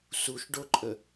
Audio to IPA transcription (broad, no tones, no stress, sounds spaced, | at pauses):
s u ʃ ɖ o ǃʼ ə